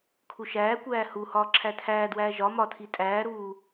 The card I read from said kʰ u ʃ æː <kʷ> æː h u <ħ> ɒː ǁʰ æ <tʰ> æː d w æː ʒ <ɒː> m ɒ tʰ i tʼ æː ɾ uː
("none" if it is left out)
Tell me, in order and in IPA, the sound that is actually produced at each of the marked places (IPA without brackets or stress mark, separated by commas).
kʷ, h, tʰ, ɒ